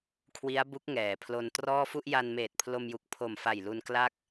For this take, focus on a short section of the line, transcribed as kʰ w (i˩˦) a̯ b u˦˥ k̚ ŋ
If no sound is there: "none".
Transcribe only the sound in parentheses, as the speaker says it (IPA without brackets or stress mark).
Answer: i˦˥